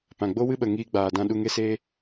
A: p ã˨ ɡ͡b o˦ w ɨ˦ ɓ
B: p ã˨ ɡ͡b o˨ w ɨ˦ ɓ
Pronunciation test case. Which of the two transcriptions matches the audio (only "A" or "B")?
A